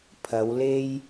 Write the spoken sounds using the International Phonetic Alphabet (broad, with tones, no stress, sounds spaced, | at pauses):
pʰ ɐ˨˧ w l e˥ j